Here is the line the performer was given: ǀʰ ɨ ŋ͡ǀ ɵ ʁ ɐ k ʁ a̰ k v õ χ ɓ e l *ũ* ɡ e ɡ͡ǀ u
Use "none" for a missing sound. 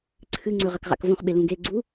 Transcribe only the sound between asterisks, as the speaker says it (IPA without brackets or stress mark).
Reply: ũ